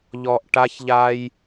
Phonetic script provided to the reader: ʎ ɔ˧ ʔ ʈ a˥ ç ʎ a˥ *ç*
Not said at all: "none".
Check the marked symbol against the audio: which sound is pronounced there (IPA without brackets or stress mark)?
j